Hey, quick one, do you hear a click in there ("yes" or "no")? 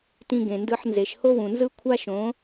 no